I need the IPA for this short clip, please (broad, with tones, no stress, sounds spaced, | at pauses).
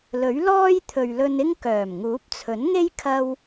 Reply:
l ɵ˨˥ ɥ l ɔː˥ j t̪ʰ ɵ˨ ɥ l ɵ˧ n ɪ˥ ŋ k œː˨˩ m ŋ uː˨˥ p̚ t͡sʰ ɵ˨˥ n ŋ e˥ j kʰ ɐ˥ w